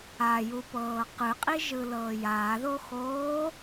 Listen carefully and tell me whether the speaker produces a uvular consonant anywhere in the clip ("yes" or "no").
yes